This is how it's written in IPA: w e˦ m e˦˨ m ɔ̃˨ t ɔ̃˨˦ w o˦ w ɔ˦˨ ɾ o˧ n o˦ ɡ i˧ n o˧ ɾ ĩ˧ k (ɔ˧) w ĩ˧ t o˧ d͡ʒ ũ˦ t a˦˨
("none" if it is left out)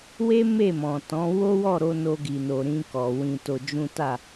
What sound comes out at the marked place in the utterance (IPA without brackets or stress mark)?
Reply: ɔ˨